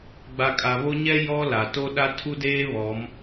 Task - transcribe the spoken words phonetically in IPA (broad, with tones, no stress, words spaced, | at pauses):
ɡ͡ba˨kʼa˨βo˦ ɲɛ˦ jɔ˦ la˨to˦ ɗa˦tʰu˦deː˦ βɔ˨˦m